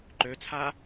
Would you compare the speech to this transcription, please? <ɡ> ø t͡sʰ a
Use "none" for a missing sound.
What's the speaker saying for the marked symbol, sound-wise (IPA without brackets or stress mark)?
ǃ